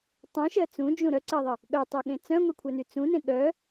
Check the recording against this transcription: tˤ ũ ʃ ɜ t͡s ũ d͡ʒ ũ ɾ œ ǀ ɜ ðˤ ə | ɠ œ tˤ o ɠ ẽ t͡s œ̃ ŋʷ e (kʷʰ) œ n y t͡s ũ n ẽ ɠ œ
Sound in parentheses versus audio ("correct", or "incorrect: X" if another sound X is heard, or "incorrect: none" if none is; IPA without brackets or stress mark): correct